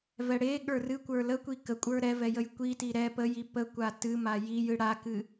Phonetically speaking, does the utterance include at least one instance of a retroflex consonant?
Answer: yes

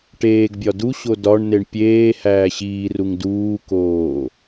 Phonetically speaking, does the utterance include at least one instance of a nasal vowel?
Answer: no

